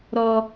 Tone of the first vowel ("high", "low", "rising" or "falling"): high